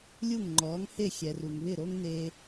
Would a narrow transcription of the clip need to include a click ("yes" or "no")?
yes